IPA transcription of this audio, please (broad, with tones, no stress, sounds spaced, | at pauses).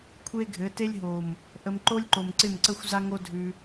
kʷʰ e˦ ɡʱ ɘ˨˦ t e˦ lʲ ɦ o˨ m | ʔ ə˧ m ǃ o˦ lʲ ǃ o˨ m ǀ ɪ˦˨ m ǀ ə˦ xʷ z a˦ ŋ o˦ dʱ ʉ˧